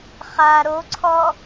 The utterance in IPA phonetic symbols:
χa ɾoǀʰɔ

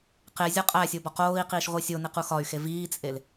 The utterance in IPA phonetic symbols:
qe zʲɒqʼæsʲo bɒqoːi̯qiːʃ ʁʷisʲoniq uxɒy̯xe viːt͡sʼel

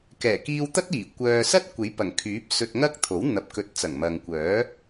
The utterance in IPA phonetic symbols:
kɛː˨˩kiː˧wt̪ɐ˥t̚iː˨˩ kʷœː˧ sɐ˥t̚ kʷe˨˥jpɐ˨˩ŋkʰyː˨˥p̚ sɵ˧t̚ŋɐ˥k̚t̪ʰo˨˥w n̪ɐ˨˥p̚kɵ˨˥t̚t͡sɐ˨˩ŋ mɐ˨ŋkʷœː˨˥

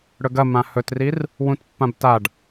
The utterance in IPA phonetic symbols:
ɽɵɡɐ mãhɵtrir | wũtpːãbtaɖ

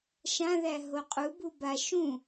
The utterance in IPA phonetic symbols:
ʃãðæ ɦoqʼubu ba ʃũ

